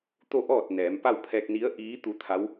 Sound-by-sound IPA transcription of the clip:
t̪ o˥˨ ʔ ɔː˥˨ t̚ n ɛː˩˧ m p a˥˨ w pʰ ɛː˧ k̚ n i˧˥ ə̯ ʔ iː˧˥ t̪ u˧˥ t̪ʰ a˧˥ w

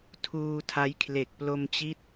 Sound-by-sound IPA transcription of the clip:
tʰ uː˧ tʰ a˦˥ j kʰ l e˨˩ k̚ p l o˧ m t͡ɕ i˦˥ t̚

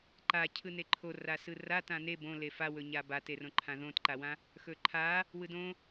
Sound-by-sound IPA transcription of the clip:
ǃ a cʰ ɯ n e ǃʰ o r a s ɯ r a t ã n e b õ l e f a w ɵ ɲ a b a t e r õ ǃʰ ã ð õ t ǃ a w ã | x ɵ ǃʰ a | w ɯ d õ

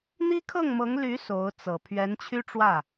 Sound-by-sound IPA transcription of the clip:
n̪ i˥ kʰ ɤ˥˩ ŋ m ɤ˧˥ ŋ l y˧˥ s o˧˥ ʊ̯ t͡s ɤ˨˩ pʰ ɥ ɛ˧˥ n t͡ɕʰ y˥ ʈ͡ʂ w ä˥˩

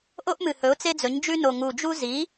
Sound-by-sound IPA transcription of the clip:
ʔ o˥ ʔ m ɨ˨˩ h ɵ˩˥ ʊ̯ t͡s e˥ d͡z ɵ˩˥ ɲ d͡ʒ ʉ˥ n o˨˩ ŋ u˨˩ d͡ʒ u˥ z i˩˥

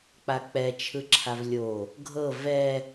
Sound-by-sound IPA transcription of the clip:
k͡p a k͡p ɛ t͡ʃʰ ɯ ǁʰ a v lʲ o | ɡʱ ɤ v ɛ

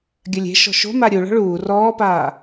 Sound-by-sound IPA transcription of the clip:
ɡʲ ɐ lʲ e̤ ʃ ɔ̤ ʃ o̤ m a ɾʲ u ɭ ɔ̤ ɭ uː r ɔː p aː

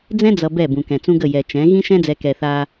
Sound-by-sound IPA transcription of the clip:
d͡z ɛ̃˦ d͡z ʌ˨ b ɛ˦˨ b ũ˨ k ɛ̃˨ t͡s ũ˦ ɡ ə˦˨ j ɛ˨ t͡ʃ ɛ̃˨˦ ɣ ĩ˦ ʃ ɛ̃˦ d͡z ɛ˨ k ɛ˨ θ a˦

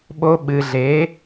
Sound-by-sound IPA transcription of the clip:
ɓ o˧ ɓ ɨ˨ ɮ e˨˦

